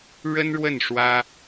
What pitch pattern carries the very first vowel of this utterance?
high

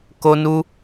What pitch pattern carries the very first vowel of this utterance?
high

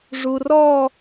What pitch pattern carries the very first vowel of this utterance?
low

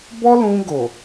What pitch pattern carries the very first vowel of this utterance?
high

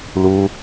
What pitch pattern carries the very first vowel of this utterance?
low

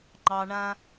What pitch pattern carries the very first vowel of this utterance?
high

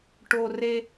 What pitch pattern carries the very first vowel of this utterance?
low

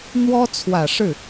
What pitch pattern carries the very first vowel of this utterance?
high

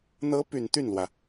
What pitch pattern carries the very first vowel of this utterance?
rising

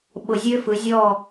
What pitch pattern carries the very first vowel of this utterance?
low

